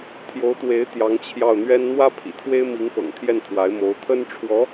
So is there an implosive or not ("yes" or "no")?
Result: no